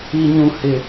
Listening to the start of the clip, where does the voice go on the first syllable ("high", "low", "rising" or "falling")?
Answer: low